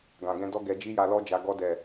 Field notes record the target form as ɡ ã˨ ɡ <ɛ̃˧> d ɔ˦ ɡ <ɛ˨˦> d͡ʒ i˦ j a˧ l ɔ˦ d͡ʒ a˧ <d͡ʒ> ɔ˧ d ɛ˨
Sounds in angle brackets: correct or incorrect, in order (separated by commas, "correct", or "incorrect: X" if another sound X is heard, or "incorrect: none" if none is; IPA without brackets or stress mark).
correct, incorrect: ɛ˧, incorrect: ɡ